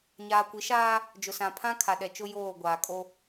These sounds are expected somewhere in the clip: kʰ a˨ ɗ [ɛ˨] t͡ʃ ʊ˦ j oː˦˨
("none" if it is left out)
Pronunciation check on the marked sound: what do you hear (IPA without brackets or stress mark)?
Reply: ɛ˨